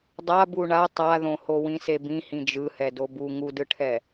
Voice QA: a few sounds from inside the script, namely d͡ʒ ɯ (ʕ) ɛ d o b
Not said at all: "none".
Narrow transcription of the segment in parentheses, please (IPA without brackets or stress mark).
h